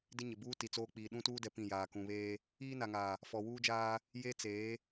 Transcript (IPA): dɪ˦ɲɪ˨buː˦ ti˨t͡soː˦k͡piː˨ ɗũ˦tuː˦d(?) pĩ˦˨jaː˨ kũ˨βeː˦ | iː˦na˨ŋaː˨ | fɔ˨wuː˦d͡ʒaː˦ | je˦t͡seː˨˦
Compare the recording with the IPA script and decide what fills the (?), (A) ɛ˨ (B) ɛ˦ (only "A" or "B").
A